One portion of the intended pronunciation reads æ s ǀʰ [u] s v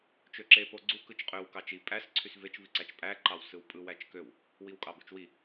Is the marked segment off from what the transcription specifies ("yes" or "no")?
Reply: yes